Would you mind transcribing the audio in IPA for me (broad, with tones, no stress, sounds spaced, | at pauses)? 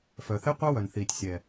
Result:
f œ˨ θ e˦ qʷ ɑ˦ w œ˨ n θ iː˨ tʲ sʲ ɛː˨